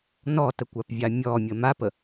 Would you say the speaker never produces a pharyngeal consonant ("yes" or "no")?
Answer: yes